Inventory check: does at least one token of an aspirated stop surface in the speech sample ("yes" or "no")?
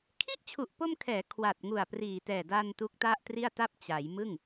yes